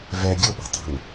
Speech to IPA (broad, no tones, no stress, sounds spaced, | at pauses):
v ɛ ɡʲ o ɓ ɛ̤ tˤ ɛ̤ n